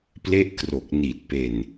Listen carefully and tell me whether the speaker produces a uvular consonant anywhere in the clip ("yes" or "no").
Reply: no